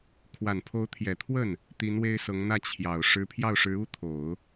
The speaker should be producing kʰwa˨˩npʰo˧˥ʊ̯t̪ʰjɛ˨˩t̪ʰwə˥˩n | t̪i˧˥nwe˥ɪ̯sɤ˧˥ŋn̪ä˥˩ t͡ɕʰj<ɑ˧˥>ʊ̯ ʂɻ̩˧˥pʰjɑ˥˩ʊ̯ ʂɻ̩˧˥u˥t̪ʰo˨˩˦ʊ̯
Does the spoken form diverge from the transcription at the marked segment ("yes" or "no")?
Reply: yes